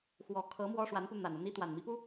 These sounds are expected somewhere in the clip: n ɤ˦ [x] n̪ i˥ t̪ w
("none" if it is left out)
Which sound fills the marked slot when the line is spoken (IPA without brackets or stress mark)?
none